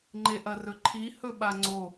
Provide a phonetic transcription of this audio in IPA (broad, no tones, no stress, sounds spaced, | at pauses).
ŋ͡ǃ e ʔ ɐ r ɵ ǃʰ i h ɵ ɓ a ŋ͡ǀ o